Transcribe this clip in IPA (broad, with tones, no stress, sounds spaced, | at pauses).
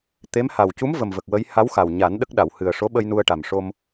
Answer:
t̪ e˧˥ m h a˨˩ w c u˧˥ m v ə˨˩ m v ə˨˩ k̚ w ə˧˥ j h a˧˥ w x a˨˩ w ɲ a˨˩˦ n ɗ ə˦˥ k̚ ɗ a˨˩˨ w h ɨ˨˩ ə̯ ʂ o˧˥ ɓ ə˧ j n u˧ ə̯ ʈ a˨˩ m ʂ o˧ m